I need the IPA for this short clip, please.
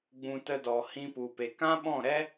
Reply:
ɡ͡b ũ˨ t ə˧ d ɔ˨ h ĩ˧ p u˨ p e˨ k ã˦ ɓ ɔ̃˦˨ ɾ ɛ˦

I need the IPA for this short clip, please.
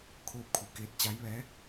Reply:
kʰ oː˧ p̚ kʰ u˩˧ k eː˧ t̚ t͡ɕ a˧˥ j ʋ ɛː˧˥

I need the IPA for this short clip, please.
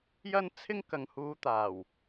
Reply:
j ɐ˥ n t͡sʰ ɪ˥ ŋ k ɐ˨ ŋ h uː˨˧ t̪ aː˨˩ w

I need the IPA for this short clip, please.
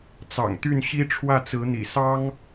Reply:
t͡s ɑ̰˨˩ ŋ t̪ y˥˩ n ɕ i˥ ʈ͡ʂʰ w ä˥˩ t͡s ɹ̩˧˥ n̪ ḭ˨˩ s ɑ˥ ŋ

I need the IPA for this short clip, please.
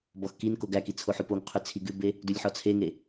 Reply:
b ɔ x k i n k o ɡ æ k i t͡sʰ o ħ ʉ p o ŋ qʰ ʉ t͡sʰ i ɡ ʉ b e | d ʉ lʲ ħ ɔ t͡sʰ e ŋ e

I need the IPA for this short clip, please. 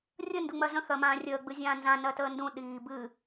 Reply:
rʲ ə n d u ŋ͡m ɜ z ə̃ x ɜ m ãː rʲ əː ɡ͡b ɨ zʲ ãː n z ã n ɜ t əː n d ũ ɗ iː b ɨ

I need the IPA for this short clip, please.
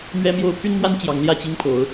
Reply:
m ɥ ɛ˦ m j o˦ ʊ̯ pʰ y˦ n m w a˦ n t͡ɕ j ɑ˨˦ ŋ l j ä˥˨ t͡ɕ i˦ ŋ pʰ o˨˦ ʊ̯

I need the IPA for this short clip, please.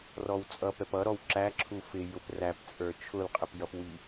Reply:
r ɔ w t͡sʼ ʌ p ɛ p ʌ ɾ ɔ w ǁ æ ǁʰ u f ɪ j ʊ p r æ p t͡sʼ ə˞ t͡ʃʰ ʊ l qʼ ɪ p j ʌ p w i

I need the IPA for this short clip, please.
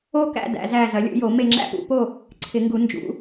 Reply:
o˦˨ k æ̰˦˨ d æ̰˨˩˦ z æ˦˨ z ɐ˨˩˦ lʲ ṵ˨˩˦ j o˨˩˦ m e˦˨ ŋ͡ǁ æ̰˦˨ p ṵ˨˩˦ p o˦˨ | ǀʰ ɪ˨˩˦ ŋ ɡ u˨˩˦ n d͡ʒ ṵ˨˩˦

